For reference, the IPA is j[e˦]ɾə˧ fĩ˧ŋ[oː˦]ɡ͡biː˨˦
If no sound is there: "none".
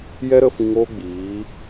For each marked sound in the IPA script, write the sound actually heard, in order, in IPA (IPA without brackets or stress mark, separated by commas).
ɛ˦, oː˦